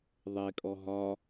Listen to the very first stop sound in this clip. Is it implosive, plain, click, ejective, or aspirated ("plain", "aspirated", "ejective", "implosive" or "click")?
ejective